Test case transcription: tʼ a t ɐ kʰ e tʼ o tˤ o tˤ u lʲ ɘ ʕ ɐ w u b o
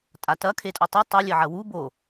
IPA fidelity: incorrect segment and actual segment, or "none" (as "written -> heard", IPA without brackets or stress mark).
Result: none